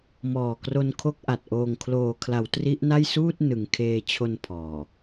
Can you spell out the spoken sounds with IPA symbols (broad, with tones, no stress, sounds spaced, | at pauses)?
m ɔː˨˩ k r o˧ n kʰ o˦˥ k̚ ʔ a˨˩ t̚ ʔ oː˨˩ ŋ kʰ l oː˨˩ kʰ l a˩˦ w t r i˦˥ ʔ n a˥˩ j s uː˥˩ t̚ n ɯ˩˦ ŋ kʰ eː˧ t͡ɕʰ o˧ n pʰ ɔː˨˩